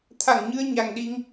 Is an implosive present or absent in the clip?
present